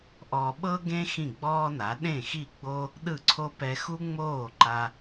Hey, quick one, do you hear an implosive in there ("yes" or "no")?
yes